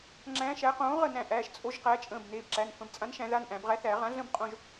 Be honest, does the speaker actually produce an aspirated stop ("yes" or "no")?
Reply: no